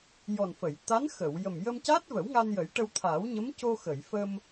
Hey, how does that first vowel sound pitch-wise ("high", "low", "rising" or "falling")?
low